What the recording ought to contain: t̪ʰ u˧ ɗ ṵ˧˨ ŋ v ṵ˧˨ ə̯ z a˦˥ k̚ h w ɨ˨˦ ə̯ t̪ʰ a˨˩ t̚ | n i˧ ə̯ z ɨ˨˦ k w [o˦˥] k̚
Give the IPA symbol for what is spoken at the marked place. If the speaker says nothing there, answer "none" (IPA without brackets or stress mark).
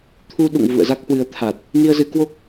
o˦˥